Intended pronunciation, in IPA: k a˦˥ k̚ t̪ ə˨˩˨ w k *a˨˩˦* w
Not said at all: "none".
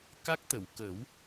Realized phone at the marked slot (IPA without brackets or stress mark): ə˨˩˦